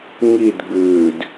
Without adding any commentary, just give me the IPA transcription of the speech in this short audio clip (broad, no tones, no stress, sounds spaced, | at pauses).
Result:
ŋ i d ɡ͡b ʉː d